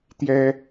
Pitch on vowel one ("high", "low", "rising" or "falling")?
high